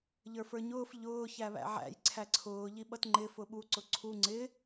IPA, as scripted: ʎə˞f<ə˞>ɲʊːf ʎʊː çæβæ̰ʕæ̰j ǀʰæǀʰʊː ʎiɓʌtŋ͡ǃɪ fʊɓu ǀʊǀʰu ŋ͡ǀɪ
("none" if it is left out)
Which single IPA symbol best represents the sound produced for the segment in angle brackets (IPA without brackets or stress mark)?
ə˞